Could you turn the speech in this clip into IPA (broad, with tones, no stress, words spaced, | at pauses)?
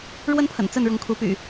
ɻwə˦npʰə̰˨˩n t͡sə˥˨nɻʊ˨˦ŋkʰu˨˦ py̰˨˩